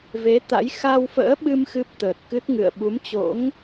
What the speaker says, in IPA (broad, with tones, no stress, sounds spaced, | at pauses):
v e˨˦ t̪ a̰˧˥ j x a˧ w f ə̰ː˧˥ ɓ ɨ˧ m x ɨ˦˥ p̚ t̪ əː˨˩ t̚ k ɨ˦˥ t̚ ŋ ɨ̰˧˨ ə̯ ɓ u˨˦ m t͡ɕ o̰˧˥ ŋ